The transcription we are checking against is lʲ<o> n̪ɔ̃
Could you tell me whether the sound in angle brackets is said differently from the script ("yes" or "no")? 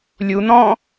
yes